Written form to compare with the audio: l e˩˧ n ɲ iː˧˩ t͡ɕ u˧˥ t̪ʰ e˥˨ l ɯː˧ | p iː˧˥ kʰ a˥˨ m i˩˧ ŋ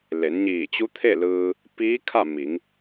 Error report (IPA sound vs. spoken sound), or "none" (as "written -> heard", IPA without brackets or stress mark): none